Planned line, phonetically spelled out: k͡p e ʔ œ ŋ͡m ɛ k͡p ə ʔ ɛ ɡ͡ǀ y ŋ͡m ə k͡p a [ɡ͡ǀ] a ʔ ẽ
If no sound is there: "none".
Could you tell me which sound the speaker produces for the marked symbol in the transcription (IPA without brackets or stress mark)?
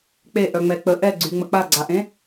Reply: ɡ͡ǀ